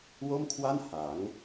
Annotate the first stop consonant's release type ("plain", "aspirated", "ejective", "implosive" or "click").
aspirated